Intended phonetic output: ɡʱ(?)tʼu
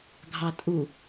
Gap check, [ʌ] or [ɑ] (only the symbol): ɑ